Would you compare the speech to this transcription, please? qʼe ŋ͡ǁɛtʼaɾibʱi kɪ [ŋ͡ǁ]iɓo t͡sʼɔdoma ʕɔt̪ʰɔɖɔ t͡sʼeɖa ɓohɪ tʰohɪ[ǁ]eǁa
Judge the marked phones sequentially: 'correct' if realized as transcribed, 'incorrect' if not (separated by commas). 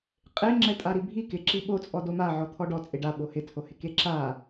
incorrect, incorrect